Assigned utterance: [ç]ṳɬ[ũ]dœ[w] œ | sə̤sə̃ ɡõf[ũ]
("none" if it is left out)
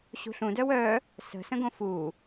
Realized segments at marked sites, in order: ɕ, ũ, w, u

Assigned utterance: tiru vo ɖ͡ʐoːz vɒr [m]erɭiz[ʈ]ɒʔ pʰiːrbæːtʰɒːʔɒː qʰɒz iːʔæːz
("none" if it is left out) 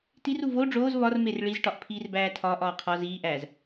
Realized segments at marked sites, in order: m, ʈ

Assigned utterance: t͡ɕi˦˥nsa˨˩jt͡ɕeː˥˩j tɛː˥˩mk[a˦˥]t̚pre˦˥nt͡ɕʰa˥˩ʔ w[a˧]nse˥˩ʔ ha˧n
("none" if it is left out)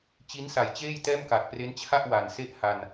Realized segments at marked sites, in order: a˨˩, a˨˩

